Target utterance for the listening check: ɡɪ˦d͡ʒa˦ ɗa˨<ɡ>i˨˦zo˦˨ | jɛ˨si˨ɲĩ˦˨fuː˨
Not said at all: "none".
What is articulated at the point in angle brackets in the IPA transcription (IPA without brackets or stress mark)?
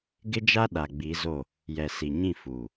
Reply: ɡ͡b